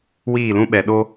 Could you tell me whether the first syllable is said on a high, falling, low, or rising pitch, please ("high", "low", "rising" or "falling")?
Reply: falling